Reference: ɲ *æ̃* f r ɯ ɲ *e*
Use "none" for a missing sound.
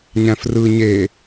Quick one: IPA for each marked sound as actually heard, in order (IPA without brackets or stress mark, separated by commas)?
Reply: æ̃, e